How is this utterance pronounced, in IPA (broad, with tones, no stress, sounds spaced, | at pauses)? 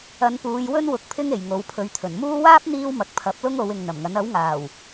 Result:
ɐ˨˧ n p uː˨˧ j w ɵ˥ n w ʊ˧ k̚ pʰ ɪ˥ ŋ e˨˩ j ŋ o˨˧ w pʰ ɵ˨˥ ɥ t̪ʰ ɵ˨˩ n m uː˥ w aː˥ p̚ n̪ iː˥ w m ɐ˨ k̚ pʰ ɐ˨˥ p̚ l ʊ˥ ŋ o˨˧ w ɪ˨ ŋ n̪ ɐ˨˩ m ŋ ɐ˨˥ n ɐ˨˥ w ŋ aː˨˩ w